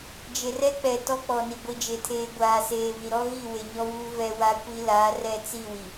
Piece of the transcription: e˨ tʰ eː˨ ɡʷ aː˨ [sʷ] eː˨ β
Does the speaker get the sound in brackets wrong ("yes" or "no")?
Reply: yes